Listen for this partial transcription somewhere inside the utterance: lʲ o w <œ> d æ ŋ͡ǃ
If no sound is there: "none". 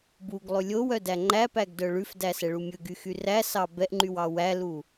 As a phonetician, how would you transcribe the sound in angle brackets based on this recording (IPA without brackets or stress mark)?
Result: œ